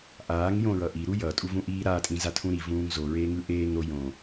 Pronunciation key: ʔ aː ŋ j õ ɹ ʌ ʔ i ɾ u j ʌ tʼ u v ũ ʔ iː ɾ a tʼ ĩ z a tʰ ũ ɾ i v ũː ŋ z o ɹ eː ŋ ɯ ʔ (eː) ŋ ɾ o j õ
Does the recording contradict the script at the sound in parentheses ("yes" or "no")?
no